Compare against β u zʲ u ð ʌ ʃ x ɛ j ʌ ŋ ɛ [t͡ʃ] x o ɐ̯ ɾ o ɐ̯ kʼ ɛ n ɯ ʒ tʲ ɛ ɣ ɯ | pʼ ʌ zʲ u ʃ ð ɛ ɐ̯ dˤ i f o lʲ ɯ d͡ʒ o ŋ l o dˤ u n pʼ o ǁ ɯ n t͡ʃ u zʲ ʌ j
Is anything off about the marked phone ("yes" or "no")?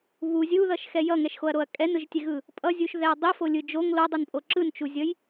yes